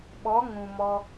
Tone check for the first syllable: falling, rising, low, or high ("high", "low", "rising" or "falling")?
rising